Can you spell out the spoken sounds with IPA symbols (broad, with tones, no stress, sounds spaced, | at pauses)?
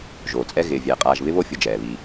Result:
ʒ oː˩ t͡sʼ ɛ˦ ɣ ɪː˨ vʲ ɛː˩ qʼ aː˨ ʒ β ɪ˦ β o˦ fʲ ʊ˨ d͡ʒ ɛː˩ β i˨